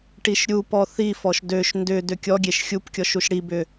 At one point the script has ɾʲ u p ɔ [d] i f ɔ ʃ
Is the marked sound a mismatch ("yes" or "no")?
yes